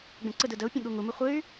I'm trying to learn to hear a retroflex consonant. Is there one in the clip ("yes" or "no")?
no